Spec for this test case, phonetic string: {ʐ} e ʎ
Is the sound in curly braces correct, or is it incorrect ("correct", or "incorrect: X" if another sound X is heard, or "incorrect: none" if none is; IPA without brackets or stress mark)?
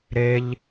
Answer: incorrect: ɾ